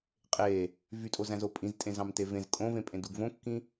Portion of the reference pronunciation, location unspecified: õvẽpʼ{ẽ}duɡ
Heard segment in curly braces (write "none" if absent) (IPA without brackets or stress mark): ẽ